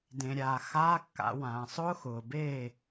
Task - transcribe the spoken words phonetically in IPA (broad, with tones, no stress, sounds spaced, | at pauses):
d ẽ˩ ɾʲ aː˩ x aː˧˥˧ kː a̰˩˧ w ãː˩ sˤ ʊː˥ x ʊː˩ b eː˥˩